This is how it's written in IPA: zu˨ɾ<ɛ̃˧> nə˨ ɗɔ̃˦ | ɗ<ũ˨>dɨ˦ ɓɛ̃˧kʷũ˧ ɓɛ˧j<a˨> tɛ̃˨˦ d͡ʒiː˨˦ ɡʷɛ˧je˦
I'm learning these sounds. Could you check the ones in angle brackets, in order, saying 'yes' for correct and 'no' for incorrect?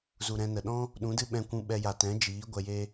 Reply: yes, no, yes

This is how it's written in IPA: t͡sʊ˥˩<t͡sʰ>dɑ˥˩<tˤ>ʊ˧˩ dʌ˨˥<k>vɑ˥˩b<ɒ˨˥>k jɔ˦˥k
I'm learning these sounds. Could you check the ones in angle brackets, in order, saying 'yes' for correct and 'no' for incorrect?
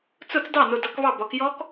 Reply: no, no, yes, yes

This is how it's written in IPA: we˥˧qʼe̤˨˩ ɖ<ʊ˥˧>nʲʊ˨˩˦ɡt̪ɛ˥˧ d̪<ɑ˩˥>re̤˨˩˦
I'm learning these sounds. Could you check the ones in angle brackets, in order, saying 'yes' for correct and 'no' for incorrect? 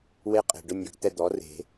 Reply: yes, no

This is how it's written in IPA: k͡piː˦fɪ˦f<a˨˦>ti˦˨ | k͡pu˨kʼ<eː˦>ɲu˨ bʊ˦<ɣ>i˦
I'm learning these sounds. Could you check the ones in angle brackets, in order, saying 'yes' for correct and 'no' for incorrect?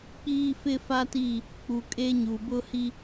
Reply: no, no, no

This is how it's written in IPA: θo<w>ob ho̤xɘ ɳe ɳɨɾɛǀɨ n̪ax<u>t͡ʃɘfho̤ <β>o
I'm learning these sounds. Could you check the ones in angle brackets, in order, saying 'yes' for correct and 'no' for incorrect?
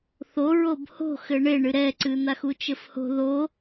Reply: no, yes, no

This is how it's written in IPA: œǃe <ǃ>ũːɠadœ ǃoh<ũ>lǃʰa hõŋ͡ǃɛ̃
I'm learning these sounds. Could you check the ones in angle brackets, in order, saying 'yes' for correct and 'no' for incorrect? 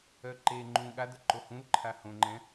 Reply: no, yes

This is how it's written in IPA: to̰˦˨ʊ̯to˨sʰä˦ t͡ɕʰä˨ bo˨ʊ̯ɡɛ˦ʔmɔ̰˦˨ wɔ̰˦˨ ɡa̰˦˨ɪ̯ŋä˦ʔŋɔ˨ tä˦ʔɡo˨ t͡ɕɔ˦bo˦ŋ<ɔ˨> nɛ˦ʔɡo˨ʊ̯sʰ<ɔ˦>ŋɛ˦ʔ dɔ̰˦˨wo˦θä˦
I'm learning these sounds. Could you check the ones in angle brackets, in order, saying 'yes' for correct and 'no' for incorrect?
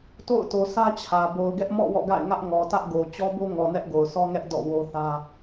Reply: yes, yes

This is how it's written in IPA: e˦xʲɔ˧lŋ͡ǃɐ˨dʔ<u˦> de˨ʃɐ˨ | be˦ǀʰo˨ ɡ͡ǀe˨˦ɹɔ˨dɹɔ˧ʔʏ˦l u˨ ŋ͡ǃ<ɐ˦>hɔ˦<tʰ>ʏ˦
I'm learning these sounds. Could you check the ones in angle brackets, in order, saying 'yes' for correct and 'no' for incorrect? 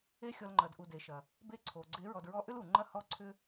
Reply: no, yes, no

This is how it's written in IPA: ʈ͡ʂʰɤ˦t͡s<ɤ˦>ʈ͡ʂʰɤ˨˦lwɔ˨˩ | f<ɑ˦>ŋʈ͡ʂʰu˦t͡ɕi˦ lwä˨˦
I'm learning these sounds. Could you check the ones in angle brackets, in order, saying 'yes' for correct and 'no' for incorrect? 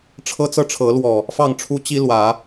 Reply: yes, no

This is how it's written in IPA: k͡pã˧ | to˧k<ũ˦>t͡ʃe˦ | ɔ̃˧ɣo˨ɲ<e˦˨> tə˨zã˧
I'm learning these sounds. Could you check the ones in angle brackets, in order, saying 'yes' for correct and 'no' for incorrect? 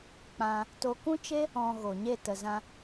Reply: yes, yes

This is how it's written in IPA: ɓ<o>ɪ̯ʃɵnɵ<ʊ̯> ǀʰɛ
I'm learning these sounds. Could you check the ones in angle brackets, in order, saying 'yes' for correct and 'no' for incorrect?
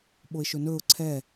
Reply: yes, yes

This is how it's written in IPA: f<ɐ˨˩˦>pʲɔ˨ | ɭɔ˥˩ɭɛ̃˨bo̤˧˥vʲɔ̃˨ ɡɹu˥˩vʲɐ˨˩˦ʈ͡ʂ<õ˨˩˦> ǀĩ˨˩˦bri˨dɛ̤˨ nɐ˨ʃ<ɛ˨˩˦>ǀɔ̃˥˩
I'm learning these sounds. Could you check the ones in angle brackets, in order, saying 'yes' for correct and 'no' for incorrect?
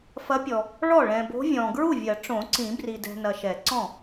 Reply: no, yes, yes

